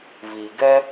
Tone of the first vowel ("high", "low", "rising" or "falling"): low